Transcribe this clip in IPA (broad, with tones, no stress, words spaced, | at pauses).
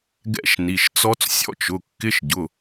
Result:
ɡɛ̰˦˥ʃni˩˧˩ʃt͡sɔ˦˥t͡s sʲɔ̰˦˥t͡ʃ ʊ˩˧˩kːɪ˧˥˧ʃɟʊ˩˧˩